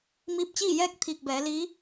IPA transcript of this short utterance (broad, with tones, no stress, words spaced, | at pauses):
miː˧p̚t͡ɕiː˥˨jɛː˥˨k̚ t̪ʰiː˧˩k̚bɛː˩˧liː˧˥